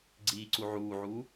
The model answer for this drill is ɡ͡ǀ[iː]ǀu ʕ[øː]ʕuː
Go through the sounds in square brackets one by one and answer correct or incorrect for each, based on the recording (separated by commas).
correct, incorrect